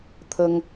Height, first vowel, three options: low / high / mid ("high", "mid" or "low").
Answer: mid